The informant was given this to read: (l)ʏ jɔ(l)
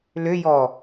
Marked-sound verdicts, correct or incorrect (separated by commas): correct, incorrect